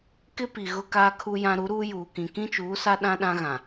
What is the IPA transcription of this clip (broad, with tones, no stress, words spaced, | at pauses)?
kɪ˦pi˨ ɣʊ˦kaː˦kʰu˦jã˦ ɾu˨˦ɾuː˦juː˨kĩ˨ kĩ˦t͡ʃuː˨˦sa˦ ɗã˦ɗã˦ɣã˨